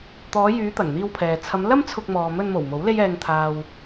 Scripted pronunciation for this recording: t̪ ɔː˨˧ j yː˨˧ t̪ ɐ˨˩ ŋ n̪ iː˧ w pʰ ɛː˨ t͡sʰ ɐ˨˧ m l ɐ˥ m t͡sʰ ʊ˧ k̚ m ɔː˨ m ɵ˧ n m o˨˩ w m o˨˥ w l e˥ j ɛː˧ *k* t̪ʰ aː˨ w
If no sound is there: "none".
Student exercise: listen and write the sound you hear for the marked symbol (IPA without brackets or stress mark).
ŋ